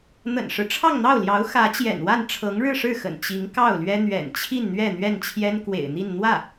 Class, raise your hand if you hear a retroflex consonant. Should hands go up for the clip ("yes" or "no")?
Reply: yes